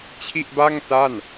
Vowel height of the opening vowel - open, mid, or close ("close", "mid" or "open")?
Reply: close